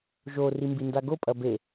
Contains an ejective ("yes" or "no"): yes